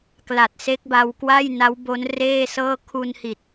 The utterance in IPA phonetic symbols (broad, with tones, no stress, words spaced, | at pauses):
kla˨˩t̚se˦˥k̚ba˧w kwa˥˩jna˦˥wbo˦˥n reː˥˩sɤː˥˩ kʰu˧nhi˨˩t̚